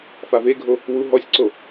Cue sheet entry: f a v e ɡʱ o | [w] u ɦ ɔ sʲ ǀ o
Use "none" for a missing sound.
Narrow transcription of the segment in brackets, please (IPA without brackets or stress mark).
w